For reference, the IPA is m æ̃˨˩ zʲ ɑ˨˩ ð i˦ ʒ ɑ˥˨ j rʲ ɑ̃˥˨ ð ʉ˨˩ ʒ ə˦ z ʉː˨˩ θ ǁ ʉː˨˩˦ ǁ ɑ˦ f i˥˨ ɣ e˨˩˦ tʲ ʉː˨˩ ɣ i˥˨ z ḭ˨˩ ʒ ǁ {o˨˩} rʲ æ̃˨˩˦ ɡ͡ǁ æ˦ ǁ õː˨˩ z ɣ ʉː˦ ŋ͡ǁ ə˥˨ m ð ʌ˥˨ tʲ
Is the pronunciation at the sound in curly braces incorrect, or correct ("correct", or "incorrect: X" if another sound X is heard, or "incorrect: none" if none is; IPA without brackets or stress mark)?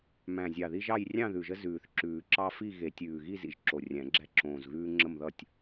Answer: correct